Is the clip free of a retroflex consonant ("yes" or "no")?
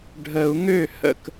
no